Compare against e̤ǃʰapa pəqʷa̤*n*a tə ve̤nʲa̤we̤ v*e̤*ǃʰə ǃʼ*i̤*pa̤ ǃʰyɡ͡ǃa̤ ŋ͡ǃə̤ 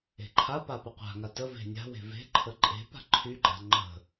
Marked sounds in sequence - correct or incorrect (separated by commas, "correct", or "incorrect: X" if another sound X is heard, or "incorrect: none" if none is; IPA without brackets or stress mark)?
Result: incorrect: ŋ, correct, incorrect: e̤